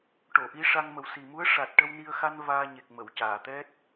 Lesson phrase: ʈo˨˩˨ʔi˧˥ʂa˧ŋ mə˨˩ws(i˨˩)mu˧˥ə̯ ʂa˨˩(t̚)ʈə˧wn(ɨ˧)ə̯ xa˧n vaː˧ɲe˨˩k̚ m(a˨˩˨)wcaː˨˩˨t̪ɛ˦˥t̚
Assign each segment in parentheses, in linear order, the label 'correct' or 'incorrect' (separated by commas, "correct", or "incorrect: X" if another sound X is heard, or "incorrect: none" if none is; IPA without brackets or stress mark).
correct, correct, incorrect: i˧, incorrect: ə˨˩˨